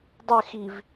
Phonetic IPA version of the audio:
dˤ ɘ x i v

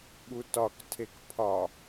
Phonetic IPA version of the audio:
ɠ u t ɒ k tʰ e k pʰ ɒ

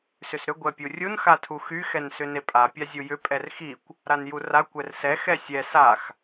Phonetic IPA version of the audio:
s ʏ s ɾ ʏ ɡʷ ɛ pʲ u rʲ u n x a tʰ u x y x ɛ n s ʏ n e pʼ a pʲ a zʲ u j ʏ pʼ ɛ r x i kʷ | ɾ a n j u r a kʷ ɛ r s ɛ x ɛ sʲ ɛ s a x

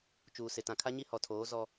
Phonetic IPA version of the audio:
t͡ʃ uː˨ s ɪ˨ t ã˨ kʰ a˦ ɲ i˦ h ɔ˨ tʰ oː˨˦ z ɔ˦

